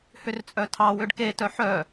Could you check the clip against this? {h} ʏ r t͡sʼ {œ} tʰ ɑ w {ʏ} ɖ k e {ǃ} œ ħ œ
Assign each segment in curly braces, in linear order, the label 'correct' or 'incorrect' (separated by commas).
correct, correct, correct, incorrect